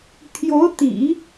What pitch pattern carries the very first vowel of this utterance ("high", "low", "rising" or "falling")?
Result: rising